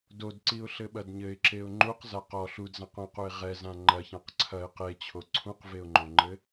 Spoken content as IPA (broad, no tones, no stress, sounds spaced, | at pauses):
d o d ǀ i ʊ̯ ɬ ɘ ɓ ɐ d ɲ ɘ ɪ̯ ǁ e ʊ̯ ŋ͡ǃ u q z a q ɔ ɬ u d z ã q õ q u ɪ̯ ʁ ɛ z ã ŋ͡ǃ ɐ ç ã q ǀʰ ɐ ɪ̯ q e t͡ɕʰ o ǀʰ ũ q v e ʊ̯ ŋ͡ǃ õ ŋ͡ǃ ɘ